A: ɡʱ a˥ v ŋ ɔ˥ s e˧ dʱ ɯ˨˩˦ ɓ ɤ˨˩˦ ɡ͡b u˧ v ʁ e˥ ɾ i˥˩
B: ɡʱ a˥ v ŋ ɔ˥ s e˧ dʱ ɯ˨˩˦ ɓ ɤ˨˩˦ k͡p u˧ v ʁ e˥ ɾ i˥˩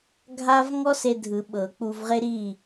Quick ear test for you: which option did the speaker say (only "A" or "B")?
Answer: B